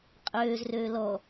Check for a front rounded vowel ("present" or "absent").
present